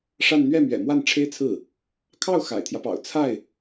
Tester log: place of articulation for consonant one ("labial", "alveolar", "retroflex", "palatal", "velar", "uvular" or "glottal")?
retroflex